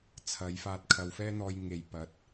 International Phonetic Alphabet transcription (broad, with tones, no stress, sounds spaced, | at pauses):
t͡sʰ ɐ˨˧ j f aː˧ t̚ kʰ ɐ˨ w f ɛː˥ n̪ ɔː˧ j ŋ e˨ j p ɐ˨˥ t̚